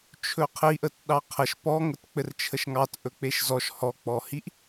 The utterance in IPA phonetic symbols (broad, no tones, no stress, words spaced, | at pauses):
t͡ʃʰɵqʰiʔət ɗɑqʰəʃ pɔŋət k͡pɘrt͡ʃʰəʃŋɑt ʔɵk͡peʃzɔʃ hɔk͡pɔhiʔ